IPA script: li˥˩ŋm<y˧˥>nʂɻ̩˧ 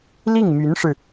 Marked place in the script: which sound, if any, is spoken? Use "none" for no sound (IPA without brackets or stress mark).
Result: y˧˥